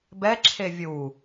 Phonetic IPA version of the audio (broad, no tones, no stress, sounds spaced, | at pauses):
b ɛ ǁʰ e vʲ u